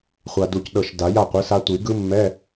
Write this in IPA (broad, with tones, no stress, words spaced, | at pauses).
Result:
χʷa˨du˨c ɗɤ˨ʃ da˨˩˦ja˥˨qʷɯ˩˥sa˦˥ tʷi˨˩˦ ɡɯ˦˥mːɛ˧˥˧